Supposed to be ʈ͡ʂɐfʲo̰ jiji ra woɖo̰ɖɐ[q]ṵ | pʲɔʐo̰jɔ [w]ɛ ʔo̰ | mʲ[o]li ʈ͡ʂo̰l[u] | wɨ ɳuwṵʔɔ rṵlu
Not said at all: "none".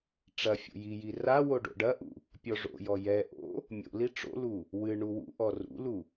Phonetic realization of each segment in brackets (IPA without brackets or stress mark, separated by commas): ʔ, j, o̰, u